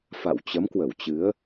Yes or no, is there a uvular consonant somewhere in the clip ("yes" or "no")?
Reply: no